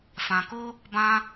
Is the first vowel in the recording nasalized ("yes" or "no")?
yes